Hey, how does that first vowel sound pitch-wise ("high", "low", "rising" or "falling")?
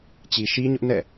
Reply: low